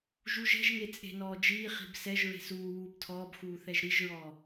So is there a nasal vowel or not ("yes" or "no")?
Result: no